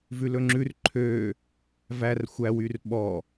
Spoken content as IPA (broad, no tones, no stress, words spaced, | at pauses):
vʉlɵŋ͡ǁʉr ǃʰø | vær xʷæwyr ɓɔ